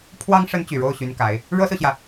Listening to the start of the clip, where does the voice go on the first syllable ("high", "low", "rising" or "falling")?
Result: high